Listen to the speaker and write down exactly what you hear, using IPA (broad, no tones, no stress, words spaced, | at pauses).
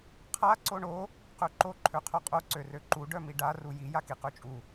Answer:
qʰa ǀoɳo | qøǃo ǃʰøqʰoqʼo ǀørøǃu ɖœmiɖa ruji jakiqøt͡ʃʼu